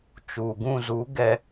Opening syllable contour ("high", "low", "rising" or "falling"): low